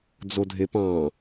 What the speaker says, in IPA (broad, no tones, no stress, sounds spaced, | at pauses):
d͡z o dʱ e p ɑ̃